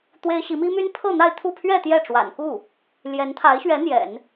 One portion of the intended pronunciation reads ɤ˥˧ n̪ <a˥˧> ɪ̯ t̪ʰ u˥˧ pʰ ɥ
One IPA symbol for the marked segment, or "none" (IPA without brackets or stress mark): a˥˧